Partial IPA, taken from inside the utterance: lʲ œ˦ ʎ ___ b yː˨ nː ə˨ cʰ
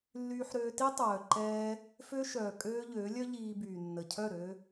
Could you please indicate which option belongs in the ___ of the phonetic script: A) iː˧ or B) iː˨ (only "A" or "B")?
A